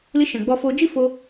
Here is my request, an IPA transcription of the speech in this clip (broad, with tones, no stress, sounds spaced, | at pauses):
l i˧ ʃ ɛ̃˨ ɡ͡b ɔ˧ f o˧ d͡ʒ i˦ f o˧